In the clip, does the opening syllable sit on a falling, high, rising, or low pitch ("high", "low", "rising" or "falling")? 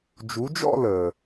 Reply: rising